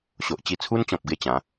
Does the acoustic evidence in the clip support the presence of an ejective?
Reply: no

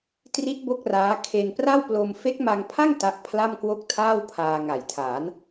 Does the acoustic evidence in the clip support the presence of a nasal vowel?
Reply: no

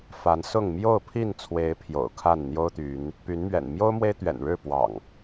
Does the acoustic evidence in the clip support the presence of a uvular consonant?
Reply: no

